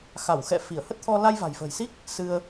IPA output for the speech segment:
x a˧˩ w x ɛ̰˧˨ f i˧˩ ə̯ h ə˦˥ t̚ t̪ʰ ɔ˧ l a˧ j v a̤˨˩ j f ə̤ː˨˩ j s i˦˥ k̚ | s ɨ˧ ə̯

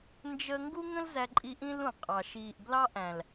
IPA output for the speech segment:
n d͡ʒ ə˦ ŋ ɡ u˦ ŋ ə̃˦ l z æ˦ ǃʼ i˦ ʔ ĩ˦ l ũ˨ qʼ ɑ˨ ʃ iː˨ ʔ b l ɑ˦ ʔ æ̃˨ l

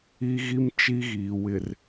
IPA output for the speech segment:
i˦ ɣ i˦ m t͡ʃ i˦ ɣ iː˨ w ɪ˨ r

